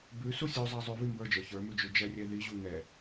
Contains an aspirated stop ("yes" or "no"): no